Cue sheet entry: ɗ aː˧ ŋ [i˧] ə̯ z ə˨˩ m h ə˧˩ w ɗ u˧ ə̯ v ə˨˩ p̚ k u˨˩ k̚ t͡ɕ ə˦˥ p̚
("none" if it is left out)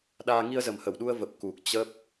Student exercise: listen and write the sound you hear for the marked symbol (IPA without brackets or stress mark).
i˧